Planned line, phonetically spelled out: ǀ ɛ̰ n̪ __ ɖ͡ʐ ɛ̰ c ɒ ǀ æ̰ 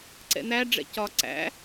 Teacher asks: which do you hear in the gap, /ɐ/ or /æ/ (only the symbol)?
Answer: æ